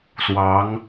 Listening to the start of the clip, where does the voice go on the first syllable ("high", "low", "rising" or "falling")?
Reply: rising